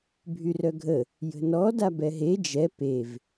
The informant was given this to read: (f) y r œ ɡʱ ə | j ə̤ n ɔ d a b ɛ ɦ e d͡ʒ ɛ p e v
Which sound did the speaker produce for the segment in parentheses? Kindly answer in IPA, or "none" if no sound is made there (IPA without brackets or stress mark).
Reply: bʱ